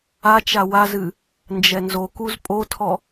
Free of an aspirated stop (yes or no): no